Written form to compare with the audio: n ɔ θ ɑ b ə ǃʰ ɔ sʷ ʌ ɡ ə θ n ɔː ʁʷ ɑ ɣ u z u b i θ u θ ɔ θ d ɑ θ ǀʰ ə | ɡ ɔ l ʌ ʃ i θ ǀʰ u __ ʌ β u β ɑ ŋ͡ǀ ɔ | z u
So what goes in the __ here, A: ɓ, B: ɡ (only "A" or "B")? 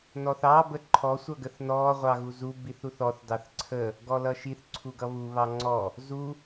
B